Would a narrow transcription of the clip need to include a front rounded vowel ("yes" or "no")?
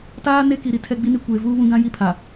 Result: no